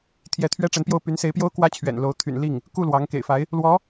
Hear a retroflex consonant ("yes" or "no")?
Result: yes